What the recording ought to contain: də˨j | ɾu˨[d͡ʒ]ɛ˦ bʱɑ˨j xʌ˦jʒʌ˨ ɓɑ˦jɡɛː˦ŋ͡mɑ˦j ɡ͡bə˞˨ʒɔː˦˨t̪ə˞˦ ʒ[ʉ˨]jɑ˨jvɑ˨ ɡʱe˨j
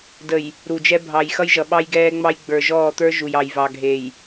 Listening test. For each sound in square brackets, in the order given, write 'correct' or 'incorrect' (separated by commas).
correct, incorrect